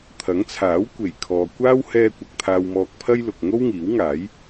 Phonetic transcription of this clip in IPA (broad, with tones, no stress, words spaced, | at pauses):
t̪ʰɐ˨˥ŋt͡sʰaː˨˥w kʷe˨˩jkʰɔː˨ kʷaː˥w hɛː˧kʷɐ˨k̚ t̪ʰaː˧wmɔː˧k̚pʰɐ˥jlʊ˨k̚ ŋo˥wŋiː˨˥wŋaː˨˥j